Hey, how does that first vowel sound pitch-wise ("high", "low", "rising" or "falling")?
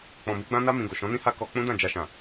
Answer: low